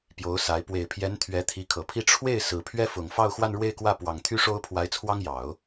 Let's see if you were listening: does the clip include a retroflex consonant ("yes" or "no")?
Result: yes